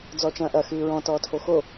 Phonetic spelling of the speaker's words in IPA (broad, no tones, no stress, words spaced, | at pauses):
d͡zɔːt͡ʃɐ̃ːʔɐ xɨːɹɔ̃ tɔːtʰoxo